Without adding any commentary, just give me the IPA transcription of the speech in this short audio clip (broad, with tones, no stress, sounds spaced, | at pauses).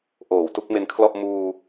ʔ oː˨˩ w t u˥˩ k̚ m e˧ n kʰ l ɔ˥˩ ʔ m uː˧